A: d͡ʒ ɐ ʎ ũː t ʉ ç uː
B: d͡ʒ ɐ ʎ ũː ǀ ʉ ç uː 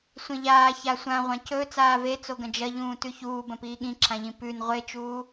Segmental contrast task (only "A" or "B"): A